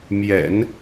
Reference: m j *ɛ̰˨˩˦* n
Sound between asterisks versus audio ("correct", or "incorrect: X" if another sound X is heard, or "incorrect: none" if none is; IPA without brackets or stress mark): correct